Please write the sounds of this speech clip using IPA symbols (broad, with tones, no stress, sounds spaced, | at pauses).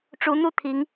ʈ͡ʂ u˧˥ n̪ u˥˩ t̪ʰ i˧˥ ŋ